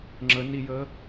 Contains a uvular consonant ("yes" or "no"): no